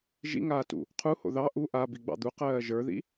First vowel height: high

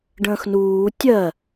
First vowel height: mid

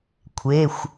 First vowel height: mid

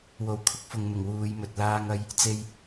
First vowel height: mid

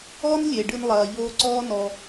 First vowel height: mid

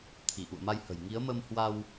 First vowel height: high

